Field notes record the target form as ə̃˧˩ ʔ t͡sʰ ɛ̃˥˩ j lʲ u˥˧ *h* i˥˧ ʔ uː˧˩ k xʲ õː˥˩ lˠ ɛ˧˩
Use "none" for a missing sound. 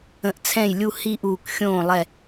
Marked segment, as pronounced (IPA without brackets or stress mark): h